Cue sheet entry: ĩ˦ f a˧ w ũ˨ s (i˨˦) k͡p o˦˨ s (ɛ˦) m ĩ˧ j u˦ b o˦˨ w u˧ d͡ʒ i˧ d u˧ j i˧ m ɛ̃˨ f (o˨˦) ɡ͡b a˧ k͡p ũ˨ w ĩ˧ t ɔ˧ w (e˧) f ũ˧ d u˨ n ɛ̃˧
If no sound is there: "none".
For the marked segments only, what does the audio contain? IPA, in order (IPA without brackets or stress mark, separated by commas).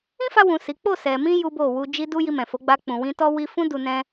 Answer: i˨˦, ɛ˨, o˨˦, i˧